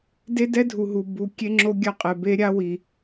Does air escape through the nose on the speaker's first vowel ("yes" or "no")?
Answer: no